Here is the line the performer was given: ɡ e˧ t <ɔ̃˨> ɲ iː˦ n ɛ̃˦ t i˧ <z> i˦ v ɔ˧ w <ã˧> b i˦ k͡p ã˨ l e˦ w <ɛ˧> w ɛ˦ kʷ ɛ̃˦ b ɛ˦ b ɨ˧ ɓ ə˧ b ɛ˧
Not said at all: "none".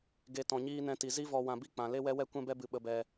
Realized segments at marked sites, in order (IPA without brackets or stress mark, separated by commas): ɔ̃˧, z, ã˧, ɛ˦